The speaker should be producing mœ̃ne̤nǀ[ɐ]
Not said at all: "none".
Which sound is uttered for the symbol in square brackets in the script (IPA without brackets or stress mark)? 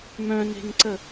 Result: ə